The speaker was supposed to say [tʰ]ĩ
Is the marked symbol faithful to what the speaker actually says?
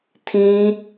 yes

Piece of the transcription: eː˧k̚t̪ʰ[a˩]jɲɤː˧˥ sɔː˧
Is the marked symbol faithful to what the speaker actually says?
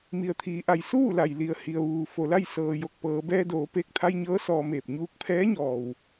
no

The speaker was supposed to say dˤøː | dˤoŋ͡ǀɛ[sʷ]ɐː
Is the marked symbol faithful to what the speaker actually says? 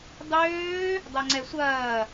yes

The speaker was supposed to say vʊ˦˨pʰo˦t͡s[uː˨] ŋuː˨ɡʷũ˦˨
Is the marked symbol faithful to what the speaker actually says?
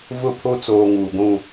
no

